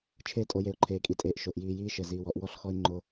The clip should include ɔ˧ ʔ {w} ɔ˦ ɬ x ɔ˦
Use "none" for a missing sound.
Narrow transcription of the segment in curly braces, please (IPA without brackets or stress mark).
w